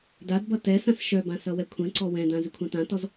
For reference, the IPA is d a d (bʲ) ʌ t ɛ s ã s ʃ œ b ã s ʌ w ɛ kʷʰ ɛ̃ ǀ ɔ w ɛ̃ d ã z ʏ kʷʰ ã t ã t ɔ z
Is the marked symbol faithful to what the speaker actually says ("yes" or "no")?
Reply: no